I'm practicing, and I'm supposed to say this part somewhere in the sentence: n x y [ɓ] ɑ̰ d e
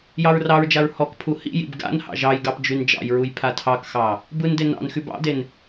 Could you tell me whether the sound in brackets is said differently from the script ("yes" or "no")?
yes